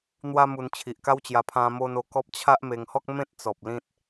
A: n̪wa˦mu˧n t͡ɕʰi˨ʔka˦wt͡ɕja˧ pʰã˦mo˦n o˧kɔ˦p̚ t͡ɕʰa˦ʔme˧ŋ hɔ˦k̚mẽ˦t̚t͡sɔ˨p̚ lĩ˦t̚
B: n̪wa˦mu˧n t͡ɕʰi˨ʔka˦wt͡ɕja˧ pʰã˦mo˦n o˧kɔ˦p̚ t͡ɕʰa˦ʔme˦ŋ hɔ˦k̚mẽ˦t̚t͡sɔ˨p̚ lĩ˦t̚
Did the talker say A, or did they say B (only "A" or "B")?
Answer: A